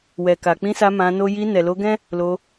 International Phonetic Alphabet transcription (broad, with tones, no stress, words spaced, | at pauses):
wɛ˨ka˨k͡pĩ˧sa˧ mã˧no˦ ji˧ nɛ˨lo˧ɡɛ̃˦ | lo˧